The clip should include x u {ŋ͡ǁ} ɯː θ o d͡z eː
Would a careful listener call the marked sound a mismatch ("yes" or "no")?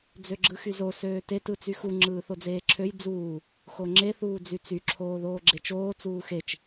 no